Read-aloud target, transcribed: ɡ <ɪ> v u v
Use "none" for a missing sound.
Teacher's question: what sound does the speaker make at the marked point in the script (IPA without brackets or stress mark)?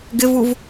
ɪ